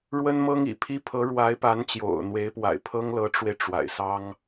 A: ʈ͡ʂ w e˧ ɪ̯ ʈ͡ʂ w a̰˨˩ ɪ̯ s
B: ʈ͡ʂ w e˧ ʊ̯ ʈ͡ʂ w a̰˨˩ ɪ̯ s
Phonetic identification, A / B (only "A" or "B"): A